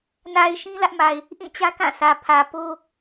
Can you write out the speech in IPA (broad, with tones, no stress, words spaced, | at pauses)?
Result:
na˨ɪ̯ ʃĩ˦lä˦ʔma˨ɪ̯ | ʔĩ˦˨t͡ɕä˦kã˦˨ sʰä˨pʰä˨ po˦